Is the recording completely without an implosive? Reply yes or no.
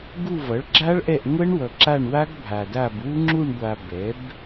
yes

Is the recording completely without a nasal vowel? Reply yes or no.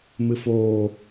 yes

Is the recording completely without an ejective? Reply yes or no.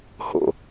yes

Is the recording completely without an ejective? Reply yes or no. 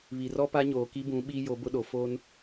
yes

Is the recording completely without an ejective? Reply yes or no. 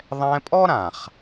no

